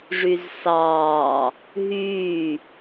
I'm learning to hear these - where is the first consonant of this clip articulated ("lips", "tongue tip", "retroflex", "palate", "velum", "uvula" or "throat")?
retroflex